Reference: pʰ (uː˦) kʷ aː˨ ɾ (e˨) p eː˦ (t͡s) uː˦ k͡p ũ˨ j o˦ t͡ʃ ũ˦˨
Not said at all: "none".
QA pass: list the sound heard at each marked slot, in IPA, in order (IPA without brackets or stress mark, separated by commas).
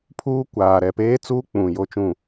uː˦, ɛ˨, t͡s